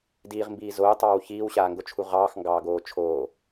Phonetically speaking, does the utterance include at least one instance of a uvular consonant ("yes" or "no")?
yes